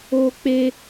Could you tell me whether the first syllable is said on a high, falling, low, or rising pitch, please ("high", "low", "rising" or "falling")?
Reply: high